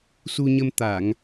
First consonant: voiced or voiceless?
voiceless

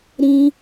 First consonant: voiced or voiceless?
voiced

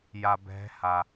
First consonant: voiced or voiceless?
voiced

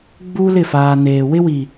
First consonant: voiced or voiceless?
voiced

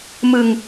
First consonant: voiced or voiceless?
voiced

